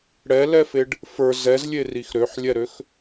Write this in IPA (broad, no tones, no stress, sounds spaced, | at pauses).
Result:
ɽ ɛ l ɛ f e ɖ | f ə˞ z ɛ z lʲ e r i x ɾ ø ħ lʲ ɛ ɾ ø x